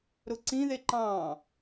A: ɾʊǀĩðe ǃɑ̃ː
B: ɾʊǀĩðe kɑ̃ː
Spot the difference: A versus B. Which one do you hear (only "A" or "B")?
A